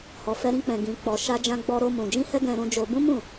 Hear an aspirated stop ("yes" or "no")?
no